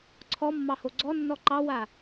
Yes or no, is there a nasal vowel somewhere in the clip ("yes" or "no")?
no